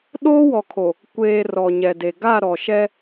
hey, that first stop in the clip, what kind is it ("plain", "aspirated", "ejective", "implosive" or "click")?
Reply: implosive